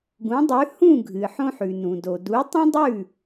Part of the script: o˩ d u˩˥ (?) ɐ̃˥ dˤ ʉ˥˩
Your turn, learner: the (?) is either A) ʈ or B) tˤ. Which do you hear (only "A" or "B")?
B